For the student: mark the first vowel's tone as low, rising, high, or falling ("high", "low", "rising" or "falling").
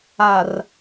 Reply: low